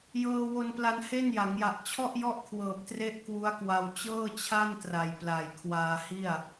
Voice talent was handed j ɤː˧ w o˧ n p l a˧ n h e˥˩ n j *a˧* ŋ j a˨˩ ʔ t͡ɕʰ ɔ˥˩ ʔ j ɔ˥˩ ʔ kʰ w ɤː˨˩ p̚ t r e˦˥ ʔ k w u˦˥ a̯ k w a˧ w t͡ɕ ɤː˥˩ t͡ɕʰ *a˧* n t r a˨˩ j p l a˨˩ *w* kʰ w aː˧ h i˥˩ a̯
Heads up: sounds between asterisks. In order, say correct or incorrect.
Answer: incorrect, incorrect, incorrect

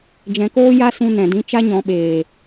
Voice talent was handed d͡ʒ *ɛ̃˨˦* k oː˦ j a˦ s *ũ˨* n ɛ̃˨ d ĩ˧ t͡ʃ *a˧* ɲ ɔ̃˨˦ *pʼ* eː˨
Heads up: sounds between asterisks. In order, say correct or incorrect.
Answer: correct, incorrect, incorrect, incorrect

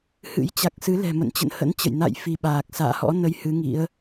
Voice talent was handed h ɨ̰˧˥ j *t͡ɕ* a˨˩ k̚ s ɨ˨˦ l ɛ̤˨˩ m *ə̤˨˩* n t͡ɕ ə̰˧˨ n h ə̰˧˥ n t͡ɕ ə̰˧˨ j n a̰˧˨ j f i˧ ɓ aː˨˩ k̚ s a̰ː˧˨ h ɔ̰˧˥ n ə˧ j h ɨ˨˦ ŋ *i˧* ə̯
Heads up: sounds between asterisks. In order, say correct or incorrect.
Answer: correct, incorrect, incorrect

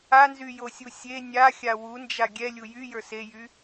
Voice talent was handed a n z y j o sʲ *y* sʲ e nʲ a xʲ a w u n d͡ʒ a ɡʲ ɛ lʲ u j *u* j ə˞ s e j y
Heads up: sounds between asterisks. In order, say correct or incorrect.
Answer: incorrect, incorrect

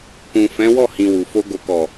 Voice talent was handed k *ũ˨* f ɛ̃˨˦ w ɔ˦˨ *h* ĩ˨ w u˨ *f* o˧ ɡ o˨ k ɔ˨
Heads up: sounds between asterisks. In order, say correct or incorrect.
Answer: correct, correct, correct

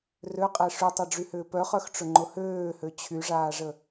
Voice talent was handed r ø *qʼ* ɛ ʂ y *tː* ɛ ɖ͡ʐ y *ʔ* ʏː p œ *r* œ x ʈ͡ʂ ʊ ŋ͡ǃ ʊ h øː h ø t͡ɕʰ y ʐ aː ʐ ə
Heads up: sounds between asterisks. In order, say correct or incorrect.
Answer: correct, incorrect, incorrect, incorrect

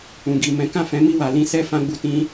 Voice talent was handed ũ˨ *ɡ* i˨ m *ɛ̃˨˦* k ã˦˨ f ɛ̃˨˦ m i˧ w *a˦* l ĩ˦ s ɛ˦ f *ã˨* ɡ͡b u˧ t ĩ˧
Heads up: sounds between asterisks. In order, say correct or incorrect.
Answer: correct, correct, incorrect, incorrect

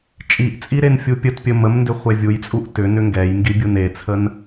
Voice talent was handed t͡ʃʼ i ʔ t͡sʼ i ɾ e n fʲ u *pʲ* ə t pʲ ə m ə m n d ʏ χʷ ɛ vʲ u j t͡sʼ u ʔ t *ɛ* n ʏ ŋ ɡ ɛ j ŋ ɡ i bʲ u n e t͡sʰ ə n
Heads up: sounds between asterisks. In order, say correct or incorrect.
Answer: correct, incorrect

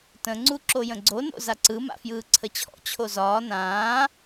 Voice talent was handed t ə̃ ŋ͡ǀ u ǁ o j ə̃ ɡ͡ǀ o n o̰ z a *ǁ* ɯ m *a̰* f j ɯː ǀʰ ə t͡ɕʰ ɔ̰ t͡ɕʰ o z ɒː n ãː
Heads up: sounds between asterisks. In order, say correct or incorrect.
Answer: incorrect, correct

